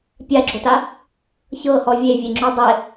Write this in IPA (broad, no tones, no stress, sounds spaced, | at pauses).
pʲ a ɡ͡ǁ o t a | ç ɤ h ɔ vʲ e vʲ e ŋ͡ǁ u dˤ e